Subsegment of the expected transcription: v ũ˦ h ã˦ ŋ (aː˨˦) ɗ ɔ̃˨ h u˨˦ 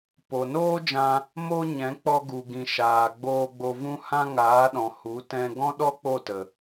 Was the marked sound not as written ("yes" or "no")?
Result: no